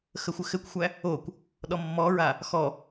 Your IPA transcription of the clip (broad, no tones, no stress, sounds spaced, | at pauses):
x ə xʷ ɘ x ɘ kʷ xʷ æ | o kʷ | ɗ ɔ mː ɔ ɹ a | x ɔ